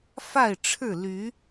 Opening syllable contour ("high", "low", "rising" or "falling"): falling